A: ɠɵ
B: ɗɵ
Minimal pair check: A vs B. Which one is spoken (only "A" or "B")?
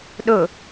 B